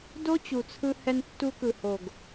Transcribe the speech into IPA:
d o˦ t͡ɕ u˨ t͡sʰ ɯ˧ h ɛ˧ n tː u˧ k ɯ˨ h o˨ ɡ

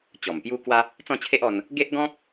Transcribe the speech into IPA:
t͡ɕ ɔ˨˩ m p j u˦ k w a˦ | t͡s ɔ̃˥˧ t͡ɕʰ e˦ ʔ ɔ˧ n | ɡ e˦ ʔ ɡ ɔ̃˦ k̚

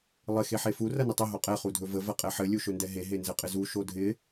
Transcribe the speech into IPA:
lˠ ɪ x e ħ e f u r ɐ n ɪ tˤ ɐ ɦ o qʼ ɛ χ u dʱ ɵ v ə v ɐ qʼ ɛ ħ ɘ lʲ u ʃ ɵ n d ɛ ɦ e ɦ e n z ɘ qʼ ɪ z u ʃ o dʱ ɪ

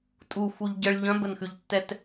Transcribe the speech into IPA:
tʼ u f u ʎ ɟ ə ɭ ʎ œ̃ b ə n x ʉ ʎ tː ɛ t

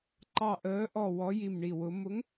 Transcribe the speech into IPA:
ǃ ɑ˦˨ ʔ əː˧˥ ʔ ɔ˦˨ w ɔ˧˥ j i˦˨ m ɳ i˦˨ w ʊ˧˥ m ʊ˧˥ ŋ

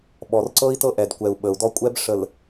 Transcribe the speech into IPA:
ɓ ɔ˨ r ǀ ɤ˦ i̯ t ɤ˦ ʔ ɛ˨ d kʷ ɛ˨ u̯ ɓ ə˨ u̯ d ɔ˦ kʷʼ ɛ˦ b ʂ ə˨ l

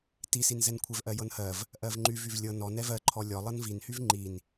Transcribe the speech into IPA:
t i s i n z ɛ n kʷʰ ɛ v ʔ ɜ j ɤ n h ɜ v | ʔ ɜ v ŋ͡ǃ y v y v lʲ ɤ n ɔ n ɛ v ɜ ǃʰ ɔ lʲ ɔ lˠ ɤ n v i n h y v ŋ͡ǃ i n

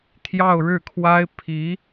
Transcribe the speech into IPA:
t̪ʰ j ɑ˥˧ ʊ̯ ɻ ɻ̩˥˩ kʰ w a˥ ɪ̯ pʰ i˧˥

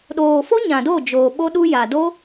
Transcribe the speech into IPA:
ɗ oː˨ f o˦ ɲ ã˨ d o˦˨ d͡ʒ oː˨ ɓ o˦ ɗ u˦ j a˨ d o˦

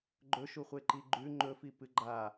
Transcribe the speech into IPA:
ɡ͡ǃ ɵ ʃ u χʷ e ǃ i ɡ͡ǃ ʉ ŋ͡ǃ ɵ f i p ɨ ɡ͡ǃ a

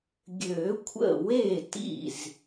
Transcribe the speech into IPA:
ɡʲ ø˨˩˦ kʷʰ ə̰˥˩ w e˥˩ t ḭ˥˩ z

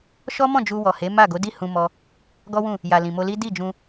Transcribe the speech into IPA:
ʃ ɔ˦ m ɔ̃˦˨ d͡ʒ u˧ w ɔ˨ h e˨˦ m a˦˨ ɡ o˨˦ d i˦˨ h ũ˧ m ɔ˧ | ɡ ɔ˦ w ũ˦˨ | j a˨ l ĩ˨ m o˧ l i˦ d i˦˨ d͡ʒ ũ˧

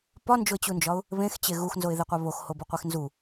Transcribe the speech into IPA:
p ɒ n d͡ʒ o ɪ̯ t͡ɕ u n d͡ʒ ɒ ʊ̯ | β ẽ x t͡ɕ e ɣ u x n z o ɪ̯ ð e qʷ æ β o x h o b u qʷ e x n z u

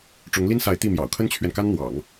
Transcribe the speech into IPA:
ʈ͡ʂ ʊ˧˥ ŋ l i˥ n s a˧˥ ɪ̯ t̪ i˥˩ m j ɑ̰˨˩ ʊ̯ kʰ ə˥ n t͡ɕʰ ɥ ɛ˨ n k a˥ n n̪ w ɑ̰˨˩˦ ŋ

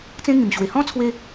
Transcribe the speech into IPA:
t͡s ẽ˦ ŋ ĩ˨˩ m ɕ w e˨˩ h ɔ̃˦ t͡sʰ w e˧

